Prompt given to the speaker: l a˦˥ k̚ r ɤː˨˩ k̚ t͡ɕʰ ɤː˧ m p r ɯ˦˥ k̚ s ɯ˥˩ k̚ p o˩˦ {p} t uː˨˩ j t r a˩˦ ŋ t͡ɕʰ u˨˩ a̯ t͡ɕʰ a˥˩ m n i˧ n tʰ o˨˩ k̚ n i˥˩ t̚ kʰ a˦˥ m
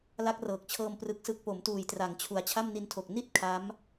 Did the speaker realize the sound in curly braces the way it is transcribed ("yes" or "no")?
no